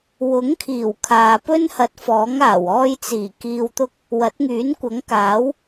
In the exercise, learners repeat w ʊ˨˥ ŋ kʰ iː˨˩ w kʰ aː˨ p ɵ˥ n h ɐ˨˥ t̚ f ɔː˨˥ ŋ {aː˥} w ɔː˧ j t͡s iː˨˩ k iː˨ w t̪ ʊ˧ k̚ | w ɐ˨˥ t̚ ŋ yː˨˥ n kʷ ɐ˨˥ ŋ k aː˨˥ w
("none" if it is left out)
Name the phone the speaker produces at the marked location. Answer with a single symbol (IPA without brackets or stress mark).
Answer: aː˨˩